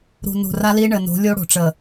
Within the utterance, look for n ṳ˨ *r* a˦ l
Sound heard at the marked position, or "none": r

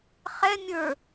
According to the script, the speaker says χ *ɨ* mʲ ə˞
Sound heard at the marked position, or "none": ɛ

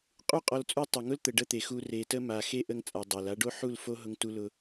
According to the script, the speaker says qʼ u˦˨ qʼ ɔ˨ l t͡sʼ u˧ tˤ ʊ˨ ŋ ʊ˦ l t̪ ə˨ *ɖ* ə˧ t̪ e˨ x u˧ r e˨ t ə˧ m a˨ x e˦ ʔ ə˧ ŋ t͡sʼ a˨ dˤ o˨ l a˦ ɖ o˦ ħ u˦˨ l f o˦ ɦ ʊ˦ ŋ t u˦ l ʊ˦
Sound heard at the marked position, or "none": ɖ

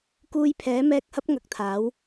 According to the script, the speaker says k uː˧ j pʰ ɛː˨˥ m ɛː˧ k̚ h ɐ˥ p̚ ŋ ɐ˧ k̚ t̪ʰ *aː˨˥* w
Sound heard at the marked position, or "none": aː˨˥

